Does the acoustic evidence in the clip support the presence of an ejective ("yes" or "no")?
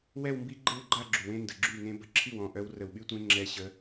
no